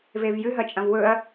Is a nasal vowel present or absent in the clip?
present